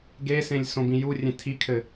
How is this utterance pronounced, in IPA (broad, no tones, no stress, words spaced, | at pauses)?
ɡesẽlʲ sõbĩjurʲẽ tʰikʰɘ